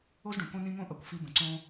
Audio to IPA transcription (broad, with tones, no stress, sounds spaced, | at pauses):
o˦ z ɖ õ˨ k õ˦ n ĩ˦ ŋ õ˦ ʔ ʌ˨ kʷ f i˧ b ə̃˨ ǀ õ˦